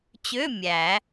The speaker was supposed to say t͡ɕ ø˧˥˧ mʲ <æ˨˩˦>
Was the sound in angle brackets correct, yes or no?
yes